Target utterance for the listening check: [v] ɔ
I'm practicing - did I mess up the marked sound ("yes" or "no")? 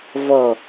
no